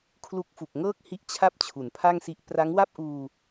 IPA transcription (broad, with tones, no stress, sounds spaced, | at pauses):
kʰ l u˦˥ k̚ f u˨˩ k̚ ŋ ɤː˥˩ k̚ h i˦˥ ʔ t͡ɕʰ a˥˩ p̚ t͡ɕʰ u˩˦ n pʰ a˥˩ ŋ s i˦˥ ʔ p r a˦˥ ŋ w a˥˩ p̚ ʔ uː˧